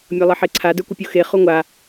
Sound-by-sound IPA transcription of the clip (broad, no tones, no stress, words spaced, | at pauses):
mʲʌlˠɪħeǀʰa də˞kʷɪpʲuxe χuŋʷa